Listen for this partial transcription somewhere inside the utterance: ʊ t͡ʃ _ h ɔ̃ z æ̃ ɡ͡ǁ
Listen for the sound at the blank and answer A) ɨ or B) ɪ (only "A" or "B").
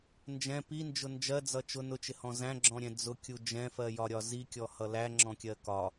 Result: B